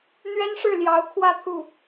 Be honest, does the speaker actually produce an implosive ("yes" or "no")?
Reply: no